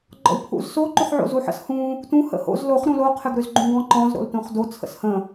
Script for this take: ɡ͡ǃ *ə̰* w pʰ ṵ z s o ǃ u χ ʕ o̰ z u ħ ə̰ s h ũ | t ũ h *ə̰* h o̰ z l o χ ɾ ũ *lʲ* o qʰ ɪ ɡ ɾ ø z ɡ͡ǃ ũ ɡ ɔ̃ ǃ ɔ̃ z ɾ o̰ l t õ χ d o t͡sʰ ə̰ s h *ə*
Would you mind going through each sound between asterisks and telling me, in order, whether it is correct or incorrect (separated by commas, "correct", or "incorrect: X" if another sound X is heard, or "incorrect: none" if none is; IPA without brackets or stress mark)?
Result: incorrect: ɔ̰, correct, incorrect: l, incorrect: ə̃